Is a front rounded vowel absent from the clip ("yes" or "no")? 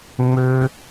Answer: no